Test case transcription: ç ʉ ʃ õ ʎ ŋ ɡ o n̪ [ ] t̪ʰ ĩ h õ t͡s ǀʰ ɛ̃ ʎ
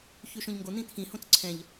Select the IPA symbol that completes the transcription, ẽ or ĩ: ĩ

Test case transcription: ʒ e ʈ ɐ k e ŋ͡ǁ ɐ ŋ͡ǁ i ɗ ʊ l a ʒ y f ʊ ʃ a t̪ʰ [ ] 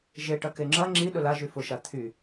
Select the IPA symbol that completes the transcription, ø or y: y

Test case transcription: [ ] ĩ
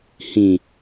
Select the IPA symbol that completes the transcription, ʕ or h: h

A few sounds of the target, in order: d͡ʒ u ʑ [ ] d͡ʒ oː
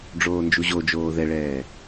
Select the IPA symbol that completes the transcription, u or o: o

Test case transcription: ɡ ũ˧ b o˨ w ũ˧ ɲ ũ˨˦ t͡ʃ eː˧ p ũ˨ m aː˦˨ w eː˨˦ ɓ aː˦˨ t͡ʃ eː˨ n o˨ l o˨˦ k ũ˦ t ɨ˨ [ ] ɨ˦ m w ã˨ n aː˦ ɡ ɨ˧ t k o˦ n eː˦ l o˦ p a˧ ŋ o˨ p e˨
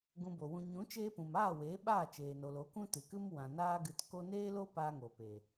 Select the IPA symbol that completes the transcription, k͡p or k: k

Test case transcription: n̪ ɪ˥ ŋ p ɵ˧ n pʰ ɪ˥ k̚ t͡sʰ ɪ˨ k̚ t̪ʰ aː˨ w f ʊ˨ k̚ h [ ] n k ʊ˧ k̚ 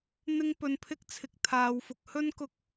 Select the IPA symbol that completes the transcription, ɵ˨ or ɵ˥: ɵ˥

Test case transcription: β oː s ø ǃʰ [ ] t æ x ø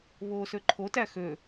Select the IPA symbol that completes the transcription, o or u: o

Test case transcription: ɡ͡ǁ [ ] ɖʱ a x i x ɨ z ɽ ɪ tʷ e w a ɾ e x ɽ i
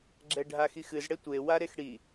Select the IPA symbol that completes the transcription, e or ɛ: ɛ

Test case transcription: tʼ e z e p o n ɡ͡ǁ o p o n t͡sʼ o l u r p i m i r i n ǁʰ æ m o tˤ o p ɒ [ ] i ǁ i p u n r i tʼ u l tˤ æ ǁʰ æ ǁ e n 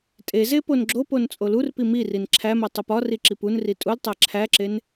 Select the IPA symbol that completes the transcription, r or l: r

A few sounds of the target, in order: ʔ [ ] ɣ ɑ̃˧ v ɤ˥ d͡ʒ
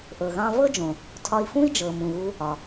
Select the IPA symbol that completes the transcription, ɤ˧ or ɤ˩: ɤ˩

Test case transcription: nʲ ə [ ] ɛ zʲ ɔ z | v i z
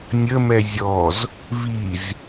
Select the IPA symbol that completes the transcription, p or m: m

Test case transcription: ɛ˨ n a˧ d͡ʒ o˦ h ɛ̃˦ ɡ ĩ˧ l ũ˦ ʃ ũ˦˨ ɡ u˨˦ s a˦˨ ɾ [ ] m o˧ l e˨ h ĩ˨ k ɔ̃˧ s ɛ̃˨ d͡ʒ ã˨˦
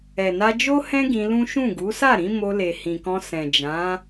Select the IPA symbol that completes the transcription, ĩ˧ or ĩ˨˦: ĩ˨˦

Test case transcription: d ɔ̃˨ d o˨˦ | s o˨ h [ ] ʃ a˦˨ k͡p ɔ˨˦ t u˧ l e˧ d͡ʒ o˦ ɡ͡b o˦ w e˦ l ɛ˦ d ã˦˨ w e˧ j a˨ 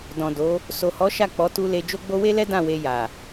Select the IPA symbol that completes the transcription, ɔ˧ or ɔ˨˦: ɔ˨˦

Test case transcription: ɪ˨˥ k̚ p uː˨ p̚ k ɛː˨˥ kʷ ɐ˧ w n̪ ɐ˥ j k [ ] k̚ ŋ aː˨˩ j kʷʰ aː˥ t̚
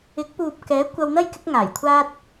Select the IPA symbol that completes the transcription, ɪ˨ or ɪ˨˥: ɪ˨˥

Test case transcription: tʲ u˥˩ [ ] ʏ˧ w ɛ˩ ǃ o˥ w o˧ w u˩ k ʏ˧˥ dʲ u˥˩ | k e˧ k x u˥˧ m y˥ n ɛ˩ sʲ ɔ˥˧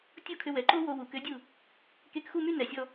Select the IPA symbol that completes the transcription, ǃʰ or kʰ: kʰ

